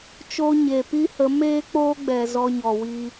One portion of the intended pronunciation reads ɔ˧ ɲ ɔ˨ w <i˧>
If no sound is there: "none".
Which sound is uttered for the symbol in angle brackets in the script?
i˧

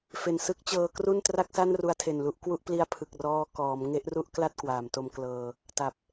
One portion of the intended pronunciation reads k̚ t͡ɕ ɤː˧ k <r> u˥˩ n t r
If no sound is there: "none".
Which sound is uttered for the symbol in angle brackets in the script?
r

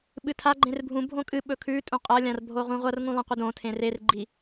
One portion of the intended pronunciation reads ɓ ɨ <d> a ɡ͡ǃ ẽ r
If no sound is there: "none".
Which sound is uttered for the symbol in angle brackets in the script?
tʰ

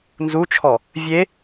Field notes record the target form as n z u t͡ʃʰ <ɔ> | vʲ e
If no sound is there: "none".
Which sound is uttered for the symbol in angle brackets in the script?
ɔ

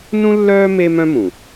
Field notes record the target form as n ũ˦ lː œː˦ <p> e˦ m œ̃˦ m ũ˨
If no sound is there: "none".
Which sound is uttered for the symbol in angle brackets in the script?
m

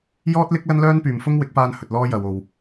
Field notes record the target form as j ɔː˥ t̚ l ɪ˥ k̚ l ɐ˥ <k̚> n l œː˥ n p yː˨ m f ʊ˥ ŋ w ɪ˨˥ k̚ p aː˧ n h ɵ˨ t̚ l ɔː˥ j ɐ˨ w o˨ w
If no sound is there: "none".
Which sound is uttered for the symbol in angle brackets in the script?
none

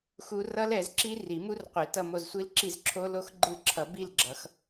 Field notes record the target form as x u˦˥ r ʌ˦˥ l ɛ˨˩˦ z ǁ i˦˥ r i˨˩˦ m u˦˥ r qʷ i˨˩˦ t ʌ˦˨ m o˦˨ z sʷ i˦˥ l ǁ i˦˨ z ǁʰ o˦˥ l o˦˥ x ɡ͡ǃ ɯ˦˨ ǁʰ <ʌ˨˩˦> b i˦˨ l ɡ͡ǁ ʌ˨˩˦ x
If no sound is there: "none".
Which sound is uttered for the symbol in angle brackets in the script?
ʌ˨˩˦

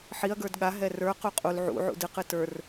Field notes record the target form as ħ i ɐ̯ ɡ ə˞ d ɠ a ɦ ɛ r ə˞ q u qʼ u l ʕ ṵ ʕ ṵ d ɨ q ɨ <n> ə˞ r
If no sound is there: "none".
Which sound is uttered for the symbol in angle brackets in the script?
t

